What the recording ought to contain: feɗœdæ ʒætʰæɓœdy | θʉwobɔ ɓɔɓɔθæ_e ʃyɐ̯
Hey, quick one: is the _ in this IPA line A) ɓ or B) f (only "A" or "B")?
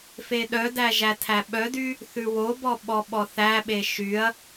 A